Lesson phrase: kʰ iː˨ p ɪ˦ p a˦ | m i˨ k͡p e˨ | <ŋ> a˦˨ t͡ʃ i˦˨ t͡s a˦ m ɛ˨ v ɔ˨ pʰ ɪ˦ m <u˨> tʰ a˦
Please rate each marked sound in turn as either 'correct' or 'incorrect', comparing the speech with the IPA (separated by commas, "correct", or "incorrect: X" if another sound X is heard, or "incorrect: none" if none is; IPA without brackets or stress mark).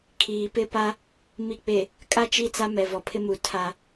incorrect: kʼ, correct